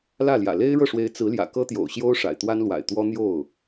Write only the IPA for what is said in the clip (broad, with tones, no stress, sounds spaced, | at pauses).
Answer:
l ä˥˩ l j ä̰˨˩ l e˥ ɪ̯ ɻ ɤ˥˩ ʂ w e˧˥ ɪ̯ t͡s ɹ̩˧˥ l j ä̰˨˩ k ɤ˥ t̪ j o̰˨˩ ʊ̯ ɕ j o˥ ʊ̯ ʂ a̰˨˩ ɪ̯ t̪ w a˥ n l w a̰˨˩ ɪ̯ t̪ w ɔ˥ n̪ j o˥˩ ʊ̯